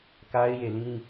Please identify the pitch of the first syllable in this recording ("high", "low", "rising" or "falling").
high